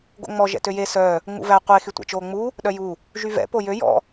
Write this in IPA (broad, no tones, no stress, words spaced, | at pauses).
ɡo̰ŋ͡mɔ ʒɛ̰tøje sœ | ŋ͡mṵvæ qʷe xytʷɛ̰t͡ʃoːŋ͡mu | ɗœju | ʒyvɛ̰ pojø jɔ̰